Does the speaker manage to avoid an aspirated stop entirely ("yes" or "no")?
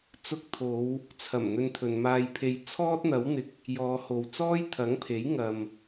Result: no